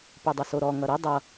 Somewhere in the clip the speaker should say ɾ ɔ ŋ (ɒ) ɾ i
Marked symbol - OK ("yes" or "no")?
no